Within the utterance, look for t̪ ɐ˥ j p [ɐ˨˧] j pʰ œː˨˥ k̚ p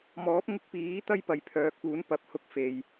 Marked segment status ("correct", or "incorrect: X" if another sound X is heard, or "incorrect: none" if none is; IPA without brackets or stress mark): incorrect: ɐ˨